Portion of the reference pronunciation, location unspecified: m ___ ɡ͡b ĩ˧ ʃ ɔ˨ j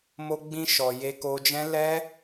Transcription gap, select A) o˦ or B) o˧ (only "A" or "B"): B